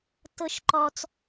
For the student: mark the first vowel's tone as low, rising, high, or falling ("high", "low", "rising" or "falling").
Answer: high